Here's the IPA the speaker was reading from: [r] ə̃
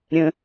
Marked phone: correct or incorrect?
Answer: incorrect